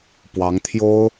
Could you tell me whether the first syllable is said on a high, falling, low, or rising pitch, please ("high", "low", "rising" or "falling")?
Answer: rising